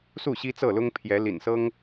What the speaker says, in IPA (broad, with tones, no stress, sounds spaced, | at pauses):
s u˥˨ ɕ i˦ t͡s ɤ˥˨ l ʊ˦ ŋ pʰ j ɛ˨˦ l ḭ˨˩ n s ɤ˦ ŋ